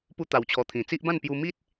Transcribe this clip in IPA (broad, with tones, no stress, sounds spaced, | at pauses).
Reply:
p u˧ t̪ a˨˩ w t͡ɕʰ ɔ˨˩ t̪ʰ ĩ˨˩ t͡s i˦ ʔ b ã˥˧ n p j u˧ m i˦ t̚